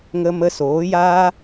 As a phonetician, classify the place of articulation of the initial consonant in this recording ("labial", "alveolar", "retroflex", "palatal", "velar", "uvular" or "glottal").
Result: velar